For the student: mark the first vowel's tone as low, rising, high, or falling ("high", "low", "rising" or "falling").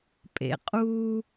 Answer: low